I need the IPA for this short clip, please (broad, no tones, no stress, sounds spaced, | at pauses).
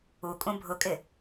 u kʼ ũ bʱ ʊ kʼ ɪ